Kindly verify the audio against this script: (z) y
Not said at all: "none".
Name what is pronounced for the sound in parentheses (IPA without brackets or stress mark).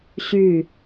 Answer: ɕ